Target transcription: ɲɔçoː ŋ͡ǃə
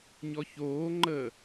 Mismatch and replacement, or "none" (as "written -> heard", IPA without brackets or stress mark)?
none